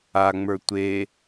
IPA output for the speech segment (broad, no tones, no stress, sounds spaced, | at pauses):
a ŋ͡m ə˞ tʷ e